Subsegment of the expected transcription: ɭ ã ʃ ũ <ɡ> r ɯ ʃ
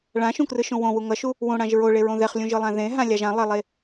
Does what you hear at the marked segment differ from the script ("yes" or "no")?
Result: yes